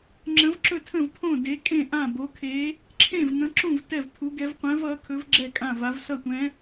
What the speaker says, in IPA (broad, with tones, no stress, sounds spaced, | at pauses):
ŋ͡ǁ ə̃˨˥ v ǁ ɵ˥˩ tʰ ə̃˥˩ v pʰ õ˥˩ d e˨˥ kʼ ẽ˥˩ ʔ ã˥˩ b o˨˥ kʰ e˨˥ | ǁʰ ẽ˥˩ v ŋ ə̃˨˥ ǁ ũ˥˩ v t ɛ˥˩ v pʰ u˨˥ ɡ ɛ˨˥ v qʷ ɛ̃˨˥ v ʌ˨˥ kʰ ɵ˨˥ v ɡ͡ǁ ɛ˥˩ kʼ ã˥˩ v a˨˥ v s ʌ˥˩ tʷ ɛ̃˨˥